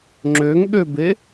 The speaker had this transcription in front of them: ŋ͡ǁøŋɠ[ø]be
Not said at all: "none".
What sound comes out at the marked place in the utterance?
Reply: ø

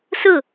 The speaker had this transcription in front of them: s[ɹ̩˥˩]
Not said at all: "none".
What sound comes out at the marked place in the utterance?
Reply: ɹ̩˥˩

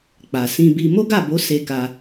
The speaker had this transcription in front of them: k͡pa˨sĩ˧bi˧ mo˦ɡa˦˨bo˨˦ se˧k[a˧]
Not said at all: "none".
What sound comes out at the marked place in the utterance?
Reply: a˧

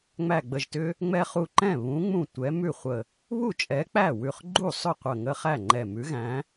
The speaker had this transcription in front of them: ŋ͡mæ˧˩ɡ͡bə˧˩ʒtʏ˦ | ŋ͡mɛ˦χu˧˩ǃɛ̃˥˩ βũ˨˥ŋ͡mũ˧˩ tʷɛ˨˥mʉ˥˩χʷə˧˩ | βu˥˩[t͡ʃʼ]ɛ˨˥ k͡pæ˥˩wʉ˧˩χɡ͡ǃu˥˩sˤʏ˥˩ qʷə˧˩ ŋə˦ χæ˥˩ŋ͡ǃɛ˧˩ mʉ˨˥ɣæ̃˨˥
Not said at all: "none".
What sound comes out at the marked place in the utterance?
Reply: t͡ʃʼ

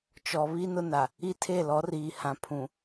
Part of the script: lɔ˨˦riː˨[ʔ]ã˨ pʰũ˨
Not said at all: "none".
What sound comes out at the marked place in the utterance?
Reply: h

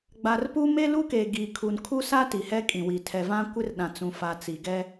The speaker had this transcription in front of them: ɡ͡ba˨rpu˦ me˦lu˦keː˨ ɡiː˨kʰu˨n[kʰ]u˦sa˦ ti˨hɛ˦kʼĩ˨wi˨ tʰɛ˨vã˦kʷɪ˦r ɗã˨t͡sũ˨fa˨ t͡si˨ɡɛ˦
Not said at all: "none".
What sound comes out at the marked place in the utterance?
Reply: kʰ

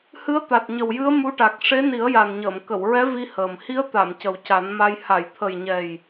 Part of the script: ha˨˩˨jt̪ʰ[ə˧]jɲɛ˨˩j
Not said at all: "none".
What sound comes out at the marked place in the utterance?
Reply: ə˨˩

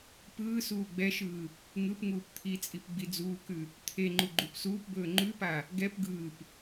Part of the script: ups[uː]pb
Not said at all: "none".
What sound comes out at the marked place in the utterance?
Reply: uː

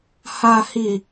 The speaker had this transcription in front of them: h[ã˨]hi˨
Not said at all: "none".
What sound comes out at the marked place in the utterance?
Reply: a˨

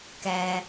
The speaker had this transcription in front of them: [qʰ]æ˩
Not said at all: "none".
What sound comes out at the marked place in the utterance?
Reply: k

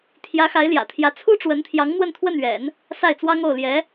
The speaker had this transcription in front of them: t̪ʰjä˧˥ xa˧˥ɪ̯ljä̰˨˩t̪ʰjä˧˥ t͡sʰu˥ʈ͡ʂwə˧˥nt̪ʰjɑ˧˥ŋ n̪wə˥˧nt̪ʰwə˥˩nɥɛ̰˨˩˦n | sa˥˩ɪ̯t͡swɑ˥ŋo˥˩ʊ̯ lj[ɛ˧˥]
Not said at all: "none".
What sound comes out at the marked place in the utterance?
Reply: ɛ˧˥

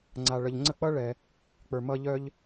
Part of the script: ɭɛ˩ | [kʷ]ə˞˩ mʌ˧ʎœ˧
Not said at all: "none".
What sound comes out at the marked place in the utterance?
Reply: k͡p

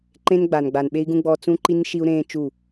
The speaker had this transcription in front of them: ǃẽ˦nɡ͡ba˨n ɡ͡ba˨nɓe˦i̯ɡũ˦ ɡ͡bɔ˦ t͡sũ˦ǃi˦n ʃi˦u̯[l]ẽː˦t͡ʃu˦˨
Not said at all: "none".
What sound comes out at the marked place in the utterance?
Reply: ɾ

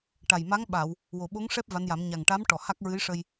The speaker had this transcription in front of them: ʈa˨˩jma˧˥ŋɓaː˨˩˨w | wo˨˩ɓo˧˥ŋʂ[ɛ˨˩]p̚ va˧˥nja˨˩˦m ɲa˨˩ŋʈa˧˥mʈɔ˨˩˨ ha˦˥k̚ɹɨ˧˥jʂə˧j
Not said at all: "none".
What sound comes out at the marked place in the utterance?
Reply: ɛ˦˥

